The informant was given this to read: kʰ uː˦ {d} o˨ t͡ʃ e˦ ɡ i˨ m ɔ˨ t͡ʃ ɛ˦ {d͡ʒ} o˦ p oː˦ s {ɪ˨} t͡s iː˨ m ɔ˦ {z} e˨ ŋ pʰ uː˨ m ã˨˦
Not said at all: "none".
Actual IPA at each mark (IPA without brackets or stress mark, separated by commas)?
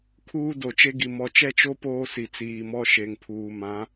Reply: d, t͡ʃ, i˨, ʃ